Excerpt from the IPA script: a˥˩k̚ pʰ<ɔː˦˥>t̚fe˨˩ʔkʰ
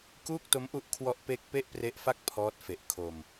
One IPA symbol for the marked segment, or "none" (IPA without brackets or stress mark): ɔː˦˥